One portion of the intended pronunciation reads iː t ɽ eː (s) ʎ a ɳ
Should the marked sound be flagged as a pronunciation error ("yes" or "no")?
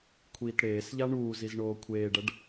no